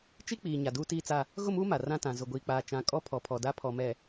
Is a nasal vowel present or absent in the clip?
present